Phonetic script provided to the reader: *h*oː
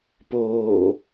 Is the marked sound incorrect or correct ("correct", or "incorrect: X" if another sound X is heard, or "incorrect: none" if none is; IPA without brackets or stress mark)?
incorrect: p